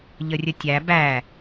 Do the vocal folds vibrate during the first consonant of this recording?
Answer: yes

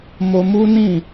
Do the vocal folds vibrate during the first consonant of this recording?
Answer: yes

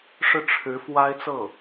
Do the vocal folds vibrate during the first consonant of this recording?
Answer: no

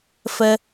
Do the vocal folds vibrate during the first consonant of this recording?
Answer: no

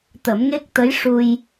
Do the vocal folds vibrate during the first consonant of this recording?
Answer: no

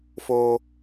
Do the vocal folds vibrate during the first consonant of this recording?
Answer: no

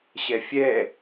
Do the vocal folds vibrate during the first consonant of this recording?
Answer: no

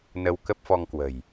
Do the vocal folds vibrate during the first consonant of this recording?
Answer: yes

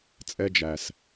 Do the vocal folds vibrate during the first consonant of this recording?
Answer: no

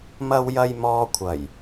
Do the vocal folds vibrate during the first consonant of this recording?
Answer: yes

